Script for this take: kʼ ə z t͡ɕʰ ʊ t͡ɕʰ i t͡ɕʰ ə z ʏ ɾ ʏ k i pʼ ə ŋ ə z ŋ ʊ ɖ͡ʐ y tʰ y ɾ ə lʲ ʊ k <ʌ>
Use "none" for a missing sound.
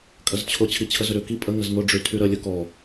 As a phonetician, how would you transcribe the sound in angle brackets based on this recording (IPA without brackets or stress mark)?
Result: ɔ